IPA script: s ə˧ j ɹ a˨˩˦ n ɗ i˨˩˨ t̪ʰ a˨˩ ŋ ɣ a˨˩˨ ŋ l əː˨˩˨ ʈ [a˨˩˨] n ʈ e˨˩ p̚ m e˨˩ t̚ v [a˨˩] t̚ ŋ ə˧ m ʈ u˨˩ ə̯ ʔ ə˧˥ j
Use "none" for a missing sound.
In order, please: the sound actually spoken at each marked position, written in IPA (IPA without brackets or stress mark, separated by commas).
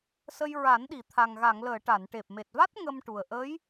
a˨˩˨, a˦˥